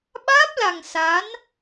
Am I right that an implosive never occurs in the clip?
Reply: no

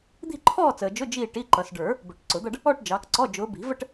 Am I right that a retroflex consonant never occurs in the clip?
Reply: no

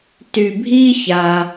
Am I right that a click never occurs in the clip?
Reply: yes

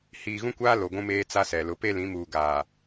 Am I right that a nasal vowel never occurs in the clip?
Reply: no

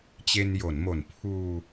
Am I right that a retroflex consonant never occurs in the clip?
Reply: yes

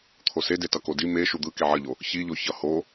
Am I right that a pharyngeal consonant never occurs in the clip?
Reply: no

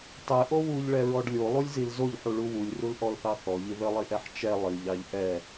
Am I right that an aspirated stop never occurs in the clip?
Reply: yes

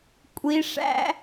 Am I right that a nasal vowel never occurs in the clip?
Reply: yes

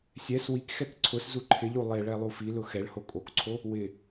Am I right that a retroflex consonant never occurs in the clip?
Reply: no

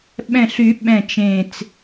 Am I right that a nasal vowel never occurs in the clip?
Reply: no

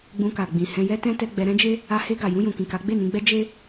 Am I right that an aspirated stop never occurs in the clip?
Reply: yes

